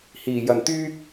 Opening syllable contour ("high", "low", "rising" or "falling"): low